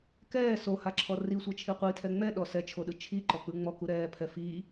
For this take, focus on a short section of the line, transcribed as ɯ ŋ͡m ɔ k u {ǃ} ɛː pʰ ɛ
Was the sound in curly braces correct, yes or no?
no